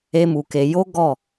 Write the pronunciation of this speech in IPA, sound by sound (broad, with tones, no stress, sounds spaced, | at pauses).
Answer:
e˦ m u˧ k e˧ j o˦ ɡ ɔ˦˨